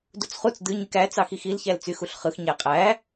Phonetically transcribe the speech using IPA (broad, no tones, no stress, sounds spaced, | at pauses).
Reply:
d u t͡s χ u t͡s d ɯ ɲ y k æ t͡s ɑ x i x i l ç æ l t͡s y x u ɬ χ ɯ x ɲ æ qʼ æ